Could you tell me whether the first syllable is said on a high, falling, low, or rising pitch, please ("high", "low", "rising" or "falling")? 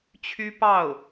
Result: high